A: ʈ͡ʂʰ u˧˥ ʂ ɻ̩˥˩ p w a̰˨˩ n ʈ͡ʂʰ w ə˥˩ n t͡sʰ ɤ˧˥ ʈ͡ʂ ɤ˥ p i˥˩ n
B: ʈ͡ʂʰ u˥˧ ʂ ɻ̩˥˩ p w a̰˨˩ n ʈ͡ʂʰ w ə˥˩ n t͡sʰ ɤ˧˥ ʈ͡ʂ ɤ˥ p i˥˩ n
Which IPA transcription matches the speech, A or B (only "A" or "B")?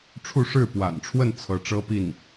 B